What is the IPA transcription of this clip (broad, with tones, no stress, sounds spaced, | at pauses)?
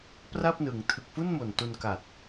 p r a˥˩ p̚ n ɯ˩˦ ŋ tʰ ɯ˨˩ k̚ f u˥˩ n m o˨˩ n t u˧ n k a˨˩ t̚